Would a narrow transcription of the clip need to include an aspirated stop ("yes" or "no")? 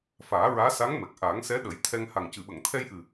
yes